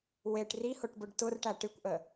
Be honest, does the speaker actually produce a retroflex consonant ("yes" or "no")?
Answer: yes